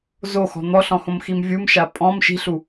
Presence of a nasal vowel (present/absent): present